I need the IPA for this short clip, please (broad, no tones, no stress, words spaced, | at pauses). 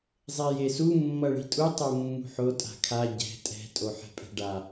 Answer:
zˤejesu mːʌɭi̤tʼu tˤomːṳħo tʼa̤kʰa ɟɛ̤ tʼɛ̤ tʼoħɛ̤pʼɛ̤ɖa